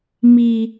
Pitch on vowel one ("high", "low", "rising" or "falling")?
high